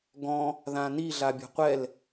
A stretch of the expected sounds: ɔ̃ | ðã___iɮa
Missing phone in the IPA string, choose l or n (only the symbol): n